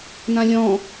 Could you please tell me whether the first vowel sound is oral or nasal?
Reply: nasal